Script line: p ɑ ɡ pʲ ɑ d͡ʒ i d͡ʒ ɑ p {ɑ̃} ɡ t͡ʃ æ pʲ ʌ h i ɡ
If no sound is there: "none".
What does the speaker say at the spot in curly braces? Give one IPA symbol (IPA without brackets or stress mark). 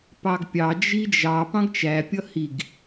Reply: ɑ̃